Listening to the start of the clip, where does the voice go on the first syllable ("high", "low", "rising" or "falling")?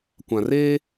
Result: low